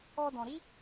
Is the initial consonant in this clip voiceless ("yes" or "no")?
no